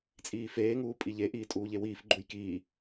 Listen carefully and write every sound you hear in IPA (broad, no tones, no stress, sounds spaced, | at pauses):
t͡sʼ iː f eː ŋ uː pʼ i ʎ e ʔ iː tʼ uː ʎ e w iː f ɡ͡ǃ u j k iː